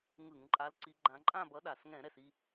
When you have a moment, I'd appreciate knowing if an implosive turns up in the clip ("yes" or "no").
yes